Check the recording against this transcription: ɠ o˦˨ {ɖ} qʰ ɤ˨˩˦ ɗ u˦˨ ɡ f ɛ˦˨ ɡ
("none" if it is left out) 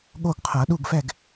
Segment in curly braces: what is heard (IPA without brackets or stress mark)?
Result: ɡ